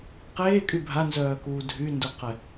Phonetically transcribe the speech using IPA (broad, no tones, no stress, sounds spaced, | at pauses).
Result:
q eː kʼ y bʱ a n z œː k uː dʱ y n d u q ɛ